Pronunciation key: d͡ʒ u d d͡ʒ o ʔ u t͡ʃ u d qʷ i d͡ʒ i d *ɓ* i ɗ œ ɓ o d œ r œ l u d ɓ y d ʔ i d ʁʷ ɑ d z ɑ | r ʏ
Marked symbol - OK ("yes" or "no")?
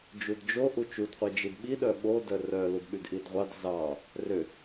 yes